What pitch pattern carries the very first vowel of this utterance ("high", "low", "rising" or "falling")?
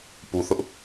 low